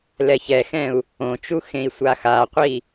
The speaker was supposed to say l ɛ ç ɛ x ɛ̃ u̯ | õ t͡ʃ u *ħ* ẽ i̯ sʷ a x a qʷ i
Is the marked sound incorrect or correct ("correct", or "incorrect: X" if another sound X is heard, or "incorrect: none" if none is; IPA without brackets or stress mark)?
incorrect: x